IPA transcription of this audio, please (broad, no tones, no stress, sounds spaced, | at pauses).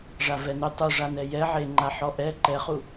ʐ a v ɛ n ʏ tˤ u ʐ a n ɛ j ɛ ʕ e ŋ͡ǃ a ħ ɔ ʔ ɛ ǃ ɛ χ u